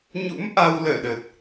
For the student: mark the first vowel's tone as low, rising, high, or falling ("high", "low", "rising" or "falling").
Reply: rising